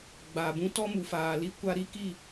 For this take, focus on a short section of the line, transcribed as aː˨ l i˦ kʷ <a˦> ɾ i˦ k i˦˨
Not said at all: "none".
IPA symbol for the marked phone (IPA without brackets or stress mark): a˦